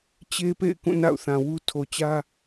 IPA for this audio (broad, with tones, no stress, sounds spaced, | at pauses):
t͡ɕ e˦ p ḛ˦˨ ɪ̯ k ũ˦˨ n a̰˦˨ ʊ̯ θ ã˨ w u˦ tʰ o˨ t͡ɕ ä˦